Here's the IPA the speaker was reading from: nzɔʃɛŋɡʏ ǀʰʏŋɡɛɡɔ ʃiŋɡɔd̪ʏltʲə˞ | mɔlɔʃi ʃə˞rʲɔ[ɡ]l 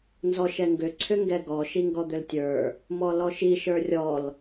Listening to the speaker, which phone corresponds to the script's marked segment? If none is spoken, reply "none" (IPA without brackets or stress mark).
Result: none